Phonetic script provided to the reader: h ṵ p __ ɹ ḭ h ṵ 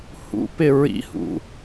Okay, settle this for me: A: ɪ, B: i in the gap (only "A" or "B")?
A